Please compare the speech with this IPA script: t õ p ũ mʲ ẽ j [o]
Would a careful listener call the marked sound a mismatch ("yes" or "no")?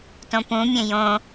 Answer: yes